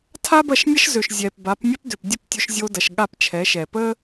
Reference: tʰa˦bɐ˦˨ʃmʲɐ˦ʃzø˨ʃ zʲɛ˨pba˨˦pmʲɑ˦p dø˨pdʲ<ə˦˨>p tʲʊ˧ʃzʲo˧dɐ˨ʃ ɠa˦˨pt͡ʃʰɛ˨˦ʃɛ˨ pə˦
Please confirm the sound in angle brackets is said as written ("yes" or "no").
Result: yes